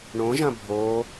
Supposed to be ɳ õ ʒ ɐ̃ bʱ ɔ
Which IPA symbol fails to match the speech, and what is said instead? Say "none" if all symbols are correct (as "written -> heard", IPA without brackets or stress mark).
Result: ɔ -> o